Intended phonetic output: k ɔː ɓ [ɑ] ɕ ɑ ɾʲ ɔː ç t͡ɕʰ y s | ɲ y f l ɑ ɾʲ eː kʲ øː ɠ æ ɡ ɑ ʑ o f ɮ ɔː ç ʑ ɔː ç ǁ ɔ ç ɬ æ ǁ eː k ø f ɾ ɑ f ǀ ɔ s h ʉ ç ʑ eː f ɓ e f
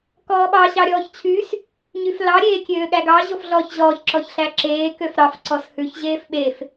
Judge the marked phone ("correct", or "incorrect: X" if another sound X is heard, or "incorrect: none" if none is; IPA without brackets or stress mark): correct